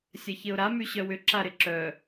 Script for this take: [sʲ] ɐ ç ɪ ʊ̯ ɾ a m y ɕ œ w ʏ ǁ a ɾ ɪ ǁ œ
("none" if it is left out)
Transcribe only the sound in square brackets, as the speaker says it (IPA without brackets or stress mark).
sʲ